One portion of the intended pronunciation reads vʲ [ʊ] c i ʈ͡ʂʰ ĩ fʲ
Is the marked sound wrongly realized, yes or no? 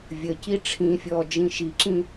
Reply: yes